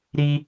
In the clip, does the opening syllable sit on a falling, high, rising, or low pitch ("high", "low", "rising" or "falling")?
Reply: high